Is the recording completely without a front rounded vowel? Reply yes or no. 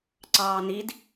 yes